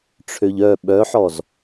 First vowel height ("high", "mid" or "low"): mid